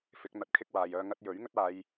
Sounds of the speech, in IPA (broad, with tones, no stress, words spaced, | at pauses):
fɪ˨˥k̚ n̪ɐ˧t̚kʰɪ˥k̚waː˨jœː˧ ŋɐ˧t̚jɵ˨˥ɥ ŋɵ˥t̚aː˨˧j